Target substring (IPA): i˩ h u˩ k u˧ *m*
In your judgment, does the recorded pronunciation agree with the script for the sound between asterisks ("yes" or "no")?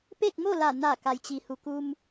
yes